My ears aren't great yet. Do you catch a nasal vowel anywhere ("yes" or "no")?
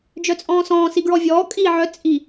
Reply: yes